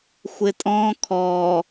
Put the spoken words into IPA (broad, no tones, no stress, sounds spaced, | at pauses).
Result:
xʷ ɪ tʼ ɔ̃ kʰ ɔː